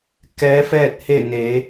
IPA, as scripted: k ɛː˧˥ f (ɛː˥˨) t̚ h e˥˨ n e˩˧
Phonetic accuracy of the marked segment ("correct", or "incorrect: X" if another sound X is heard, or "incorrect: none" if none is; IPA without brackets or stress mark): correct